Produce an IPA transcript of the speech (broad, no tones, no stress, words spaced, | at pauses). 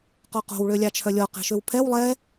qɔqo̤w ɭølʲɑt͡ʃʰœlʲɔ qɛ̤ʃøwpʰɛw lˠɛ